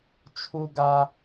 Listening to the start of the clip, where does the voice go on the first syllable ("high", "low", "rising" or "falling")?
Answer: high